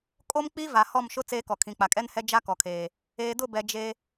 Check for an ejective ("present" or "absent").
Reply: present